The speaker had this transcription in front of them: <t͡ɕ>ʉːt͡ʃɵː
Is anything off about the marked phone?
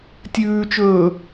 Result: yes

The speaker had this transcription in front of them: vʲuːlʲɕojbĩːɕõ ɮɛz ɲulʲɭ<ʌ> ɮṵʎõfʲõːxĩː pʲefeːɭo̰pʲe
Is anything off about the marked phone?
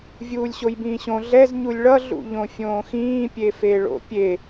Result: no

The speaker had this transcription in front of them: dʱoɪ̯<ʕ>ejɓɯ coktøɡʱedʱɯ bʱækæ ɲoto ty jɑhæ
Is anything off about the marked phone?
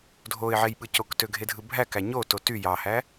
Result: no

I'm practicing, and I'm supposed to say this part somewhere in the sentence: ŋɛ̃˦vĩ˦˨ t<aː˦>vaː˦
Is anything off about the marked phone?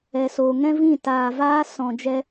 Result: yes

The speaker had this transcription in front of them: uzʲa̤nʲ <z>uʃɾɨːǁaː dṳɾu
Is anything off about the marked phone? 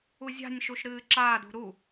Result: yes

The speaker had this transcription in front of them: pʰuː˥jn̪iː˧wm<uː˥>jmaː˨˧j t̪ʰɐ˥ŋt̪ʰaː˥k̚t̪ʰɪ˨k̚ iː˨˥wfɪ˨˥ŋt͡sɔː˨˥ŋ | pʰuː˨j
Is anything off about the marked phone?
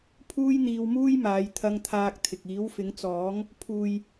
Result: no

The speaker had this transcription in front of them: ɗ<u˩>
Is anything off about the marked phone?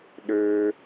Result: yes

